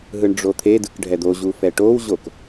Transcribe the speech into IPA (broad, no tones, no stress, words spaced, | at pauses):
ɦɯɳɖ͡ʐot̪ʰedɯk ɖʱɛd̪oʑu fɛʈowʑok